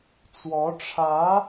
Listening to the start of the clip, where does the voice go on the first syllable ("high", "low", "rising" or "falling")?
rising